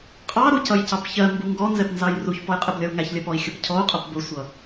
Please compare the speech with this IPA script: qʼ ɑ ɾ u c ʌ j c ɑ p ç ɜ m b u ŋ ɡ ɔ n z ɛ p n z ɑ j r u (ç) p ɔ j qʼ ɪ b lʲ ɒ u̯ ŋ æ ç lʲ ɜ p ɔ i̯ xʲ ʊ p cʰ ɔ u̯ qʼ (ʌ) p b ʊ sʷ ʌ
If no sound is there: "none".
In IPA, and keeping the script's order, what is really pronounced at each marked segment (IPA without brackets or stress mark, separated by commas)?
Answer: ç, ʌ